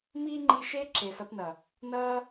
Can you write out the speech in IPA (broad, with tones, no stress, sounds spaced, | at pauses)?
m iː˦ ŋ͡ǃ i˧ ʃ e˦ ǁ e˨ s ɐ˧ p n ɐ˨ | n ɐː˦